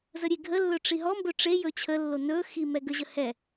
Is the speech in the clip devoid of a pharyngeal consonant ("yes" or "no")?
yes